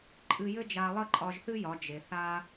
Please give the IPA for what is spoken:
ǃʼ ɨ˧ j ɘ˥ d͡ʒ a˧ lˠ ə˥ ǃʼ ɒ˧ ʒ θ ɨ˥ j ɒ˩˧ d͡ʒ e˩ θ a˧

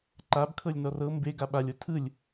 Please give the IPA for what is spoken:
ǃ a b kʰ ɤ lʲ n ɔ r ɤ m b e ɡ a ɓ a lʲ o tʰ ɯ lʲ

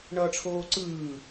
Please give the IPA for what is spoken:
ɳ ʌː ʈ͡ʂʰ oː ǀ ɯː

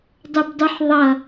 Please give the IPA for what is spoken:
dˤ ɵ b dˤ ʉ ħ ðˤ ʌ

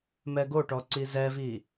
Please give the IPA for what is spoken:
m ɛ ɡ o ʈ ɔ ǀ i z ɛ v i

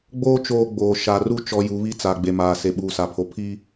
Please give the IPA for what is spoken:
ɡ͡b oː˦ t͡ʃ oː˦ ɡ͡b oː˨ ʃ a˨ r u˦ t͡ʃ ɔ˨ j u˨˦ β i˦ t͡s a˨ ɡ͡b e˨ m aː˨ s e˨ ɓ uː˨ s a˨ pʰ o˨ pʰ i˦

